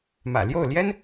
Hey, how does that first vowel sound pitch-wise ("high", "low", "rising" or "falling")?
low